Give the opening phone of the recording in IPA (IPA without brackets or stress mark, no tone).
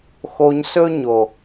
x